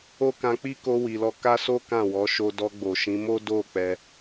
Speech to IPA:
o˦ k ã˧ k͡p i˦ k o˧ w i˨ l ɔ˧ k a˦ s o˦ k ã˦˨ w ɔ˨˦ ʃ o˧ d ɔ˧ ɡ͡b o˨ ʃ ĩ˨˦ m o˦ d o˦˨ k͡p ɛ˧

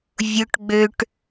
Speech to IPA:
vʲ ʊ ʈ ɡ͡b ø ʈ

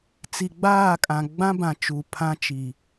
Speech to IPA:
t͡s i˨ ɡ͡b aː˦˨ kʼ ã˨ ɡ͡b ã˦ b ã˨ t͡ʃ u˨ pʰ ã˦ t͡ʃ i˨

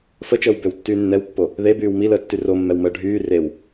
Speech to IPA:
f ə t͡ʃ əː w b ø w tː yː nː ɛ w pː o | ð e b yː w m i l əː tː y r o mː ɛ w m əː ɖʱ yː r e w

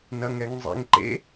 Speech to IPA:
n ɐ ŋ ɛ ŋ zˤ ḛ ŋ ǃ ḛ

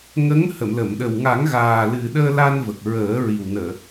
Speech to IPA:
ŋ ə˧˥ ŋ h ə˨˩˨ m l ə˨˩˨ m ɗ ə˨˩ w ŋ a˨˩˦ ŋ ɣ aː˨˩ l ɨ˨˩ ɗ əː˧ l a˧ n v ə˨˩ k̚ ɹ əː˨˩˦ ɹ i˨˩ w n əː˨˩˨

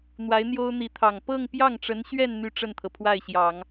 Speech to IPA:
n̪ w a˧˥ ɪ̯ n̪ j o˥ ʊ̯ n̪ i˧˥ t̪ʰ ɑ˨˩ ŋ p ɤ˥˧ ŋ p j ɑ˥˩ ŋ ʈ͡ʂ ə˧˥ n ɕ ɥ ɛ˥˧ n n̪ y˥˧ ʈ͡ʂ ə˥˩ n t̪ʰ ɤ˩ pʰ w a˥˩ ɪ̯ ɕ j ɑ˨˩˦ ŋ

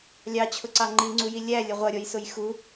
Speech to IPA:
lʲ ɑ t͡ɕʰ ʊ ǀ ɑ ŋ͡ǃ i ŋ͡ǀ u j i lʲ æ lʲ ə ʁʷ ʌ ɾʲ ɔ j s ʊ j x u

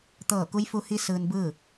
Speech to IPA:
t̪ ɤː˧˩ k u˧˥ j f u˧ h i˧˥ s ɯː˧ n b ɯː˥˨

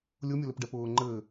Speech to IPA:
lʲ ʊ mʲ ʊ l ɘ p ɖ ɛ p ʊː ŋ͡ǃ ɘ

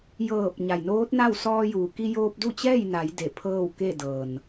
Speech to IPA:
j ɤː˧˩ p̚ ɲ a˩ j n oː˧˥ t̚ n a˥˨ w s ɔː˧ j uː˩ k i˧ j oː˧ p̚ d u˥˨ t͡ɕ ɛː˥˨ j n a˩˧ j d e˧˩ pʰ ɤː˥˨ w k e˥˨ d ɤː˩ n

